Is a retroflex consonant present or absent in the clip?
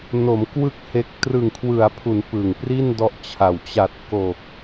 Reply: absent